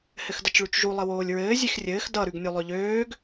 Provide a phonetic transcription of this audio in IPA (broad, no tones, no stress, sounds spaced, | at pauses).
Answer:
h ɘ x d ʌ t͡ʃ ɭ ʉ t͡ʃ ʒ u lˠ ɘ w oː lʲ ɹ ɘː zʲ e x rʲ ɘː x d ʌ ɾ ʉ ɡ nʲ ø lˠ ø ʎ øː ɡ